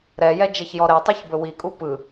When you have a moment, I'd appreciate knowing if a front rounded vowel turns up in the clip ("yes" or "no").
no